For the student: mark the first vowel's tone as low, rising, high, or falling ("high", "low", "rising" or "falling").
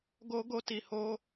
high